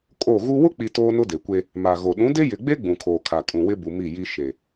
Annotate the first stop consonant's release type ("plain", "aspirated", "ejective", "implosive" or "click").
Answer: ejective